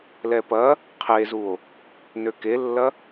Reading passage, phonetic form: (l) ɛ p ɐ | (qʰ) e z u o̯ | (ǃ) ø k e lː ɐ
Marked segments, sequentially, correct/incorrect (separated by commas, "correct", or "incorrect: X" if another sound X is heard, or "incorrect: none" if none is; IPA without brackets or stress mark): correct, correct, incorrect: n